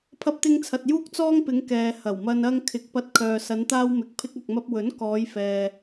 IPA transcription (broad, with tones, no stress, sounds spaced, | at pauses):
pʰ ɐ˧ p̚ t̪ ɪ˧ ŋ t͡sʰ ɐ˨ t̚ j uː˥ k̚ t͡s ɔː˥ ŋ p ɪ˨˧ ŋ k ɛː˨ h ɐ˨˩ w m ɐ˧ n ɐ˥ ŋ kʰ ɪ˨˥ k̚ p ɐ˧ t̚ kʰ œː˨ s ɐ˨˧ n t̪ aː˧ w m ɪ˨˥ k̚ pʰ ɪ˧ k̚ ɐ˨ k̚ m ɐ˧ p̚ w ɵ˨˥ n k ɔː˨˧ j f ɛː˨